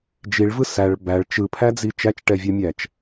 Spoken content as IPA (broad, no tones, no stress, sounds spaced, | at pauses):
d͡ʒ i ɭ v ɯ s æ ɭ b æ ɭ t͡ʃ ɯ pʰ æ d͡z i t͡ʃ æ t͡ʃ ʈ ɛ vʲ ɛ mʲ æ t͡ʃ